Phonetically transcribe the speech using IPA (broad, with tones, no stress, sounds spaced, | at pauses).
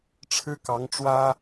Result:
ʈ͡ʂʰ ɻ̩˥ k ɑ˧˥ ŋ ʈ͡ʂ w ä˥